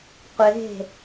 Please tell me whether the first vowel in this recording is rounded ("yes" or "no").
no